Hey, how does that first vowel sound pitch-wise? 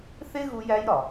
high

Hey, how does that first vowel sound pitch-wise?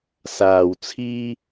low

